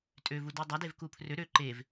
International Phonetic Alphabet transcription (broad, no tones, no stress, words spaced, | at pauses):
tʼøvudø dˤadevku pʰrø ɾø ǃev